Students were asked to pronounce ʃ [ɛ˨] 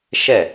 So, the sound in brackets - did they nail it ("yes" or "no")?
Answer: no